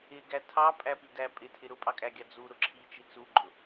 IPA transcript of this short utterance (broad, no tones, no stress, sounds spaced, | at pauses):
ɪ ɡ æ tʰ ɑ pʼ æ p i d æ pʼ ɪ tʰ ɪ ɾ ʊ pʼ ɑ kʼ æ ɡʲ ɑ d͡z u ɾ ʊ ǁʰ i t͡ʃ i t͡s u ɡ͡ǃ ʊ